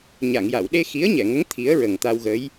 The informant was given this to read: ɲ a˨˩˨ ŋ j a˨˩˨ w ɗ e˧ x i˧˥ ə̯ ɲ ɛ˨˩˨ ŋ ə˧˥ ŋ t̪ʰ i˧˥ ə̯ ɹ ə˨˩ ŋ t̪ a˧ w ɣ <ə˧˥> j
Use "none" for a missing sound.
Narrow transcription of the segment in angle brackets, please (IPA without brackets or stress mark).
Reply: ə˧˥